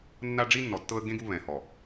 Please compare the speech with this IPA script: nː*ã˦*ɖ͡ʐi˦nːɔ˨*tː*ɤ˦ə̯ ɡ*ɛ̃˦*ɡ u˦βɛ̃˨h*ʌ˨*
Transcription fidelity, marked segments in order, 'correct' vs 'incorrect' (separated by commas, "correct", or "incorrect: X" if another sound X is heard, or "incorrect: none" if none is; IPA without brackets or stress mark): incorrect: a˦, correct, incorrect: ẽ˦, incorrect: ɔ˨